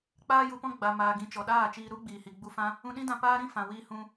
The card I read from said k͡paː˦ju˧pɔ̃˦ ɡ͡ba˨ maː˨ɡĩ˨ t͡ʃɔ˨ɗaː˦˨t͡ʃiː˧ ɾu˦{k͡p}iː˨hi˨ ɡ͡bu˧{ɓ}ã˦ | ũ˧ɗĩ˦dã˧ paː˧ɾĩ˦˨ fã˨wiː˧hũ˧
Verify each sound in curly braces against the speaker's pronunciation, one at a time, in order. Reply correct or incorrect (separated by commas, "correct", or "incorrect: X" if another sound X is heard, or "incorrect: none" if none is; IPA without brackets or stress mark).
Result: incorrect: ɡ͡b, incorrect: f